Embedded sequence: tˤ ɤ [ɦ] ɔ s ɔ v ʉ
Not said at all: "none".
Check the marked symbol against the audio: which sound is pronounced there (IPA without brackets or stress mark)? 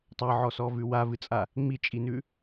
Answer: ʕ